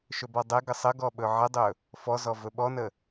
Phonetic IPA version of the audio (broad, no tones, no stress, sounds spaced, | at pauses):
ʃ ɵ b ɔ dˤ ɛ ɡ ə sˤ ə ɡ ɔ ɓ ɵ ʕ ə dˤ ɵ | f ɔ z ɔ v ɵ ɓ ɔ n ə